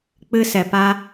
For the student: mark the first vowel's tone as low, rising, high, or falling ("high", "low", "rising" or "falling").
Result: high